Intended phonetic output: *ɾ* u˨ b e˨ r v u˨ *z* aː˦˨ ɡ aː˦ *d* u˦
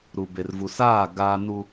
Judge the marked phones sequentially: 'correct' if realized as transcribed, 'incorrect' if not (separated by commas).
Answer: correct, incorrect, incorrect